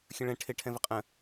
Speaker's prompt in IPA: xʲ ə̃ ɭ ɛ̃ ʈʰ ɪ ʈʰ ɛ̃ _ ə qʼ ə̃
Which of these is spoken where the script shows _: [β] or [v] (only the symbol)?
v